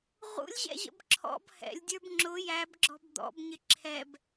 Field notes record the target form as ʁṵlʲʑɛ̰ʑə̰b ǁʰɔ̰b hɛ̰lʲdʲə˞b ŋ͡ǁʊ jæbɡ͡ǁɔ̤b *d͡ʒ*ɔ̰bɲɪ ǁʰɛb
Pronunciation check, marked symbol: incorrect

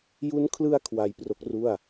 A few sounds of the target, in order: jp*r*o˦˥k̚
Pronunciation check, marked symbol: correct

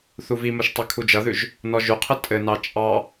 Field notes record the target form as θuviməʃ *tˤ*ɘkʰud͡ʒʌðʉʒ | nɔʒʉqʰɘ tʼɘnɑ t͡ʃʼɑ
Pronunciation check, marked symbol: correct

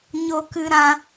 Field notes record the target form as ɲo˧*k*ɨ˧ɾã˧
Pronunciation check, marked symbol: correct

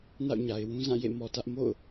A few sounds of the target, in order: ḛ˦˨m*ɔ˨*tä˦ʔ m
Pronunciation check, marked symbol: correct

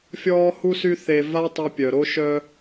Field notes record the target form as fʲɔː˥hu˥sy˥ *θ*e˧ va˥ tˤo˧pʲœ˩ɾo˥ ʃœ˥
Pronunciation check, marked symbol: correct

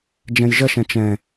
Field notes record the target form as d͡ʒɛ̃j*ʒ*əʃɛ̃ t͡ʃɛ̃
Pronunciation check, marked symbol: correct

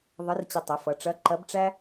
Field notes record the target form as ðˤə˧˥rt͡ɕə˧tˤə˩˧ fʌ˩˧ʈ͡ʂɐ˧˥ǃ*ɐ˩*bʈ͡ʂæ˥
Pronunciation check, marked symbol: incorrect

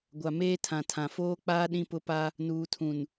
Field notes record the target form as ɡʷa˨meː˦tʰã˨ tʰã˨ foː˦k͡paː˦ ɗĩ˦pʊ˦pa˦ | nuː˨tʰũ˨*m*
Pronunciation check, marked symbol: incorrect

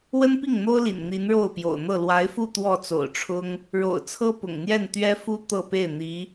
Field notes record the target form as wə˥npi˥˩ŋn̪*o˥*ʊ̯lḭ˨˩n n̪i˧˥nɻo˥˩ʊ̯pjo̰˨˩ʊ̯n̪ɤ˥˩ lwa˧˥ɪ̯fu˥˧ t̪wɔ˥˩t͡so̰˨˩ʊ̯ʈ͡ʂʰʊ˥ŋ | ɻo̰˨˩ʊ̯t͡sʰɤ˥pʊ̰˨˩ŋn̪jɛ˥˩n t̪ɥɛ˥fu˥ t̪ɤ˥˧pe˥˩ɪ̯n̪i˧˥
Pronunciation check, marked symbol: correct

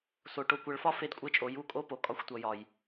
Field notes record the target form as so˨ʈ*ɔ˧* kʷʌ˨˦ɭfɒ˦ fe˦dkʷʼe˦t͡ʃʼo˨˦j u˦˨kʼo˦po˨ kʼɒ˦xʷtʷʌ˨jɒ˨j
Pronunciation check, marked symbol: incorrect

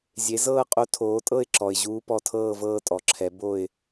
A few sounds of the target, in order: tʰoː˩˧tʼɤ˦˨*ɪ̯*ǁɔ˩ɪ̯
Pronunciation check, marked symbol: correct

